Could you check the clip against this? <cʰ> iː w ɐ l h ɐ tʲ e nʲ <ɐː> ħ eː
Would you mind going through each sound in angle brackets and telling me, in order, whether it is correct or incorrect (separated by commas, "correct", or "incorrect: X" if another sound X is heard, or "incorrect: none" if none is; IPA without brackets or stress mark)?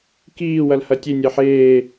incorrect: k, correct